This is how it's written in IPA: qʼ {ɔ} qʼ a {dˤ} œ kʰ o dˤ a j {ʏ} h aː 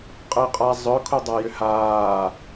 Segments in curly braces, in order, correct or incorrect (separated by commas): incorrect, incorrect, correct